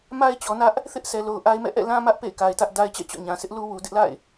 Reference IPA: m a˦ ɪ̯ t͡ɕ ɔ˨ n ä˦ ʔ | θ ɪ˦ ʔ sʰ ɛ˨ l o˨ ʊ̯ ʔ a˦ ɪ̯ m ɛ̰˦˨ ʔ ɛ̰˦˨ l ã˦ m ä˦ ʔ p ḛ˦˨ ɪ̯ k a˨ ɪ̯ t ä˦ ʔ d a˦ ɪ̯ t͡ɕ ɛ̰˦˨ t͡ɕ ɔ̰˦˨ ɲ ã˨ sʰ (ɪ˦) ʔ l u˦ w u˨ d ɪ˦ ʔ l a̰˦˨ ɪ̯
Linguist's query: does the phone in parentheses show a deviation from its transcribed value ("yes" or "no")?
no